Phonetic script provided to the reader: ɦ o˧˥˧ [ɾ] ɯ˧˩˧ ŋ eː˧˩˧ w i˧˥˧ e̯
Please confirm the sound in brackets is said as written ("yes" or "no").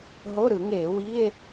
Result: yes